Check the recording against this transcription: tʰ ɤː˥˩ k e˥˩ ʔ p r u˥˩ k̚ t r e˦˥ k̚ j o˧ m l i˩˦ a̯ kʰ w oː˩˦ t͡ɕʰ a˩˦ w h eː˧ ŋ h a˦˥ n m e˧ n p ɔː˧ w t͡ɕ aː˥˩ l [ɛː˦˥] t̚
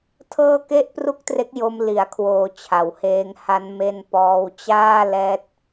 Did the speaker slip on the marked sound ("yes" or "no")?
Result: no